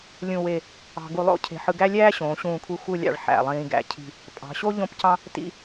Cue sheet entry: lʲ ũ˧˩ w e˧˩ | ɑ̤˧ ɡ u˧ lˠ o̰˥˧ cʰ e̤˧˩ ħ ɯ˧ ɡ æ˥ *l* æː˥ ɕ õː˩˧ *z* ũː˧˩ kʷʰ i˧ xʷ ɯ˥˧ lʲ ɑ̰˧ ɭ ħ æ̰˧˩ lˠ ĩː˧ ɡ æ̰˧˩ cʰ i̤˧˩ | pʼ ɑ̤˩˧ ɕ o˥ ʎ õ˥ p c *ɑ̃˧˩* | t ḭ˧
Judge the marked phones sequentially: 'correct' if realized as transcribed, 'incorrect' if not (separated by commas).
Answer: incorrect, incorrect, incorrect